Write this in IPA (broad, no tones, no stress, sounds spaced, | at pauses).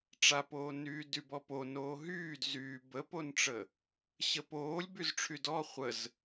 ʈ͡ʂ a p oː n yː d y b ɔ p o n oː ɦ yː d z yː b ə p o n ʈ͡ʂ ə | ɕ ə p oː lʲ b y z ʈ͡ʂʰ y d ɔ χʷ ə z